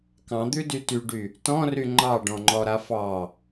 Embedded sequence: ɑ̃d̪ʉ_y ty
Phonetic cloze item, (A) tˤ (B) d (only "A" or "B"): B